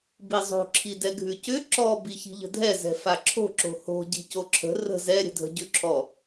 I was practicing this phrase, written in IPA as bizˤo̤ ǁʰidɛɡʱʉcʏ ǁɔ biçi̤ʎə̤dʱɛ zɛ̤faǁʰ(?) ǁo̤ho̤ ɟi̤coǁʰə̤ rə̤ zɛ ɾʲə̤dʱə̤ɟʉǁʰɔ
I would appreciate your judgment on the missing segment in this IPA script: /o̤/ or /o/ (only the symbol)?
o̤